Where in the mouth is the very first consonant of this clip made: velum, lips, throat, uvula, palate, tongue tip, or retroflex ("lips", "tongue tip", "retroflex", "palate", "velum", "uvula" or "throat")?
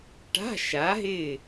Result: retroflex